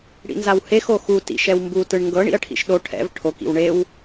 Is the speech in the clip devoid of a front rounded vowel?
yes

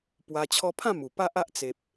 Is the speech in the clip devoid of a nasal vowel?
no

